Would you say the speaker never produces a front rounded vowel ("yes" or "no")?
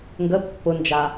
yes